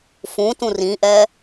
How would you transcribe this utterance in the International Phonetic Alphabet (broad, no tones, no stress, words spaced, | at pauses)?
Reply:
fũtũ rĩʔɛː